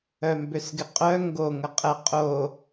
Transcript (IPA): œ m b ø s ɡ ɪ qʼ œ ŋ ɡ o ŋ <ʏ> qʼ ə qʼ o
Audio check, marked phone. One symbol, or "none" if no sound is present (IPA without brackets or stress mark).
ə